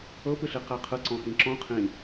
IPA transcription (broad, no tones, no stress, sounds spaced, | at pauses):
ɤ p ɯ ɬ i q ɛ qʰ ɯ ǀ ɔ̃ x ĩ ǁ ɔ̃ qʰ ĩ